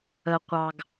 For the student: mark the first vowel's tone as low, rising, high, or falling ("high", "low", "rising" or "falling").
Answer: low